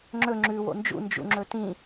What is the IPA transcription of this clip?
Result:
ŋ͡ǁɵ ŋ͡ǁʉ wo̰nd͡ʒṵ nd͡ʒṵŋ͡ǁɵtĩ

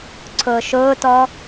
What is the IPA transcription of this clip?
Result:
ǀʰʊːʃʊːtɔ

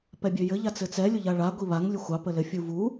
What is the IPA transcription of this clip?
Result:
pɛbʲøjɘ ʎat͡sɘt͡sɛ lʲʊʎaɭa ɡʷiβaŋ lʲʊxʷɑ pəlɘ fʲuvu

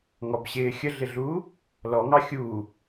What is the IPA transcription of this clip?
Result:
ŋɔbɕɪː xʲəɮɪɮuː | lɔŋɑ xʲuː

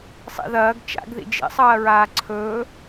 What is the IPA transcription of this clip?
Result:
sˤḭðɐːɡ t͡ʃa̰ɡðḭ d͡ʒḛsˤɐːɹaː ǀʰɵː

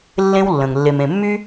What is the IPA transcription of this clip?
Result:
lːẽ˦wlːə̃˩ŋ lːe˨mẽ˨mːy˥

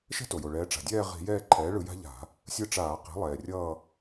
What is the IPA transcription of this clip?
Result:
ʃɛ̤˦to˩jo˩ ɭɛː˩˧ʈ͡ʂa̤˩dʲɛː˦˨ ʁi̤˧˩˧jɛː˦˨ǃʰɛː˩˥ɭɯ˧˩˧ ja̤˦ʎa̤˧˩˧ | sʲɯ˦˨ʈ͡ʂaː˧˩˧qi̤˩˥ lˠɛː˩rʲʌː˦˨

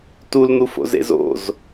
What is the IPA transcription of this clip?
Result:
tuln̪ufo̰z ḛzo̰z

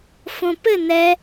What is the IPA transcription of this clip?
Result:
fõpɘ nɛ

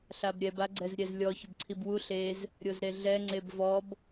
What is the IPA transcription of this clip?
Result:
ɬabɾʲɛb aɡ͡ǀɛzɾʲɛzlʲɔ çʊbǀʰibwu ɬez | ɾʲozɾeɮɛ ŋ͡ǀebvɔb

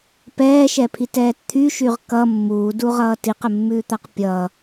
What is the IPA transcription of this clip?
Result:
pɛːʃɛpʰitɛːt t̪ʰyʃyʁ kʌ mːuːduʁʌː tiqəmːʉːt̪aq pʲʌ

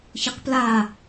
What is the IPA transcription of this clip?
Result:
çɯqpla

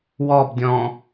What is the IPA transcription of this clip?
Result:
wɔbdʲɔ̃

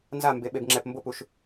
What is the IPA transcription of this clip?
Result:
nzambe ɓebŋ͡ǁɛp mbopuʃ

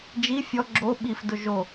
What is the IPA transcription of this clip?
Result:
d͡ʒi fʲɔ ɡ͡ǁo ɓifdʊ ʒo

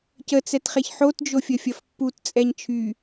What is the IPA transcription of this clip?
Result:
cət͡sɛtχeç ħotd͡ʒofʲəfʲɐf pːutt͡sʼɛɲ t͡ʃʰy

